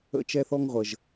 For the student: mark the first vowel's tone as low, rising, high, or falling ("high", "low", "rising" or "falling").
high